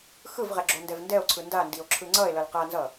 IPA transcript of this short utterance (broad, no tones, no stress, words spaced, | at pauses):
xɯvʁɛ ɡ͡ǁondɛvndɛo̯ǀʰɯ ndandio̯ ǁʰɯŋ͡ǀʌe̯lʌl qanzʌ